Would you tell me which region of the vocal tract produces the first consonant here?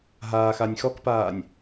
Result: throat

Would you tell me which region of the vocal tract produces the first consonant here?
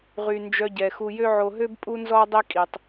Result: uvula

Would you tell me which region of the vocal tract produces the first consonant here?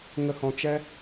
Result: velum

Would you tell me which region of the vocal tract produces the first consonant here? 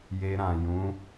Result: palate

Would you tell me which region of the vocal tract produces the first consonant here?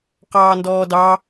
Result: uvula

